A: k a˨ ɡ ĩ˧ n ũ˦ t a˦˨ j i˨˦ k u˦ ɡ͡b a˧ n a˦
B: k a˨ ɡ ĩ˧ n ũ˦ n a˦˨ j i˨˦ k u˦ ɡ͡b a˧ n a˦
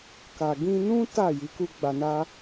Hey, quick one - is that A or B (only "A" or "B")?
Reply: A